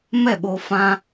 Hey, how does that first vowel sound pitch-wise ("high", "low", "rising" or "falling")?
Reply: falling